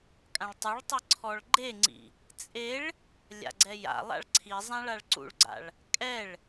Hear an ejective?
yes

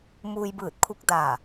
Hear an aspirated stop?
yes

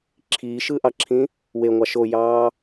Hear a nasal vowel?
yes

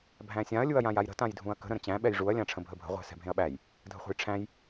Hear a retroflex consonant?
yes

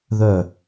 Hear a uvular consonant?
no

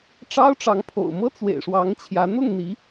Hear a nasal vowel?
no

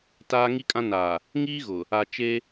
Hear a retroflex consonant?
no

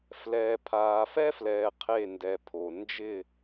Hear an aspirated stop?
yes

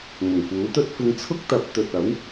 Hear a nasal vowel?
no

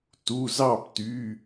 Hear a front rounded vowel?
yes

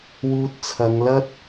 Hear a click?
no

